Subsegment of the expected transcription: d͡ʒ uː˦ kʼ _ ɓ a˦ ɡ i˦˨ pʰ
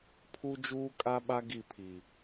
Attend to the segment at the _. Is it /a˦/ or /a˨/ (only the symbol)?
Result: a˦